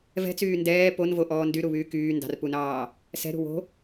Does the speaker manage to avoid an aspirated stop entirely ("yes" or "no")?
yes